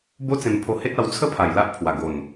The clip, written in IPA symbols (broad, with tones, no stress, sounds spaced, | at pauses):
b o˦ t͡s ẽ˧ m pʰ o˧ h e˦ t̚ a˧ w t͡sʰ ə˦ pʰ a˨˩ j l a˦ ʔ pʰ w a˨˩ ɡ o˨˩ n